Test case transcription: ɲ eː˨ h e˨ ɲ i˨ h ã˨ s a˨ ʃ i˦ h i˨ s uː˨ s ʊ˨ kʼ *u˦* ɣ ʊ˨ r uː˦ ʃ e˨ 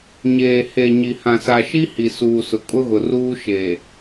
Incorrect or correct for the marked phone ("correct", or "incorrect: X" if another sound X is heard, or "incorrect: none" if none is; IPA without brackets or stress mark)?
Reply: incorrect: ʊ˦